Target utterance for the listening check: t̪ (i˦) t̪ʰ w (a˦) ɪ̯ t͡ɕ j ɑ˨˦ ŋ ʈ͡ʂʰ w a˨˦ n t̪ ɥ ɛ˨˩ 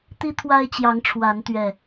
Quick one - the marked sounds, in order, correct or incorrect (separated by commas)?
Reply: correct, correct